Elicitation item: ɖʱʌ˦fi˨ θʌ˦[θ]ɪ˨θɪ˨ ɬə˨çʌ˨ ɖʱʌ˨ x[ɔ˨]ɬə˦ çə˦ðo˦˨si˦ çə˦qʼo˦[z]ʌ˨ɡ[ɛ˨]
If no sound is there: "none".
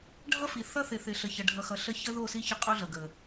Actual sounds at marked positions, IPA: θ, ʌ˨, ɮ, ə˨

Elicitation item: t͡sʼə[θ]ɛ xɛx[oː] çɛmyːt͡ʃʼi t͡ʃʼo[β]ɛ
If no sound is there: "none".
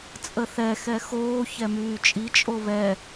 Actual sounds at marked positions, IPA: θ, oː, β

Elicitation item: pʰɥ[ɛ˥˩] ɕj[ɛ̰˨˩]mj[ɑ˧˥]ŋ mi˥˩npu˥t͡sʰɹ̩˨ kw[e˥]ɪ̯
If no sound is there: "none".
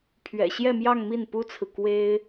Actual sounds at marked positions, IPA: ɛ̰˨˩, ɛ˥˧, ɑ˥˧, e˥

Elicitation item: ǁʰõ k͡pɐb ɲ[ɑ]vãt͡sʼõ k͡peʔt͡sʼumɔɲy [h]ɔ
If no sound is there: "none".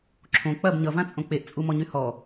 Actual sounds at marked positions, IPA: ʌ, h

